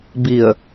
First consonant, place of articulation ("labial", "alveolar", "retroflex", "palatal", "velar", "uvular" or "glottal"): labial